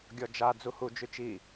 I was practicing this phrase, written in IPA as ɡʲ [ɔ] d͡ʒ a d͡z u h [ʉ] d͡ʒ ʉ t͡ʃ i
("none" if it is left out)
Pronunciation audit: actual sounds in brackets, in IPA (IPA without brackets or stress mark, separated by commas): ɔ, u